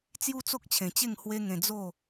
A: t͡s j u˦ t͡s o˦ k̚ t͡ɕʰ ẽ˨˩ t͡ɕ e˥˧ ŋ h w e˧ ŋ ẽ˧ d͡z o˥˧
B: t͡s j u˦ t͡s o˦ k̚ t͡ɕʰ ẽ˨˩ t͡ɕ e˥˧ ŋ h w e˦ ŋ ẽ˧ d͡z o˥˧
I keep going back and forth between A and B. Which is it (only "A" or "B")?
B